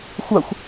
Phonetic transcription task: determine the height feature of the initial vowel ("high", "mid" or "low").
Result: low